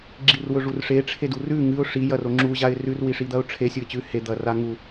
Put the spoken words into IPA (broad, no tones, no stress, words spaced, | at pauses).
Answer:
ɡ͡ǁirwɵʐurʂe ʈ͡ʂʰedurʉ ŋɨʊ̯ ʂi jɐroŋ͡ǁu ʑaɪ̯rʉr wiʂid̪ɐʊ̯ʈ͡ʂʰe sʲuɪ̯t͡ɕʉ he d̪ɐraŋu